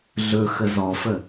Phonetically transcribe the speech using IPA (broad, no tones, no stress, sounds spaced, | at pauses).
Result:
ɮ ɵ x ə z ɔ f ə